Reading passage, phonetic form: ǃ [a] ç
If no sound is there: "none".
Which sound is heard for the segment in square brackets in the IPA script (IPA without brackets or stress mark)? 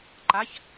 a